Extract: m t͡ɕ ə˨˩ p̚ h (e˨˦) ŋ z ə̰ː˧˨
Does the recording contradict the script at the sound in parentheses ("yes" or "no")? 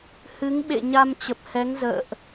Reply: yes